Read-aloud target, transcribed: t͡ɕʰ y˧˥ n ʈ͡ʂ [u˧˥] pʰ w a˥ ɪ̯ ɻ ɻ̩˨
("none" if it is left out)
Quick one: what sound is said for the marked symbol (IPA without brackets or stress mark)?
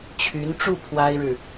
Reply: u˥˩